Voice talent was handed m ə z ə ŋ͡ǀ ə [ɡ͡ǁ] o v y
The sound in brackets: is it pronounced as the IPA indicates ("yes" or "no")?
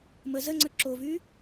no